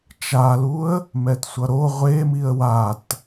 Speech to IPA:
t͡ʃ a l u ə̯ | m ɛ t sʷ ʌ ɾ o ʁʷ e m i ə̯ w a t

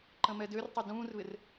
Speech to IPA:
ǃ ə̃ m ɛ d ø r tˤ ɪ d ũː r β ɪ r

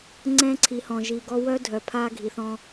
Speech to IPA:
ŋ͡ǀ ɛ̃ː˦ ǀʰ i˨˦ h ɔ̃˨ ʒ i˨ ɡ ɔ˦ w œ˦ dʱ œ˨ pʰ aː˦ ɡʱ i˨ θ ɔ̃˦

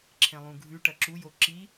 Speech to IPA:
ǁʰ ẽ lˠ ũ ɡʱ ʉ ʈ ɐ ǁ u j o ǁ i

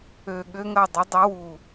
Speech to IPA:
ø˨˩ ɠ ø˦ ŋ ɐ˦˨ dˤ ə˨˥ dˤ ʏ˨˥ w u˨˩

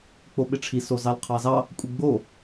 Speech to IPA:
k͡p o ɓ e ʈ͡ʂʰ i s o z ɑ l qʰ ɑ z ɑ | kʷʼ i ɡ͡b o

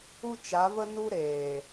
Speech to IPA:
u˦ t͡ʃ a˨˦ v ə˦ n u˦ ɾ eː˨

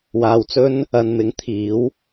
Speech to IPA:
w aː˧ w t͡s ɵ˥ n | ɐ˨ n m ɪ˨˥ ŋ t̪ʰ iː˨˧ w

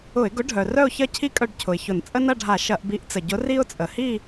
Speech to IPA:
ʊ˧˩˧ ɪ̯ ɡ ʊ˨˥ ɖʱ œ˩ r œ˥˨ ʊ̯ ç ɐ˥˨ cʰ i˥˨ kʼ œ˥˨ ɖ cʰ ʊ˩ ɪ̯ ç ʊ˧˩˧ n t͡sʼ ə˦ n ɐ˥˨ ɖʱ a˧˩˧ ʃ ɐ˧˩˧ ʔ b i˨˥ ʔ t͡s ə˩ ɟ ʊ˨˥ r i˦ ʊ̯ t͡sʼ ə˩ h i˥˨

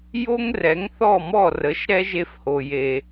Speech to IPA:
j o˥ ŋ r ɛ˩˥ ŋ θ ɔ˥˩ m ɔ˥˩ r ə˩˥ ʃ ɾ ɛ˥ ʒ e˧ f h o˩ j e˩

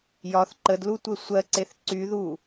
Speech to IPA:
j ɒ θ ǃ ə d l u tʷ ɘ sʷ ɜ ǀ e θ ǀ y ð u

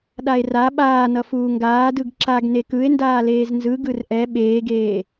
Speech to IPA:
ɗ a e̯ r a ɓ aː n ʌ f uː ŋ ɡ aː d ɯ ɡ ǁ a ɡ n e k ɯ e̯ n d aː l eː z n z ɯ ɡ ɯ r ʔ ɛ ɓ eː ɡ eː

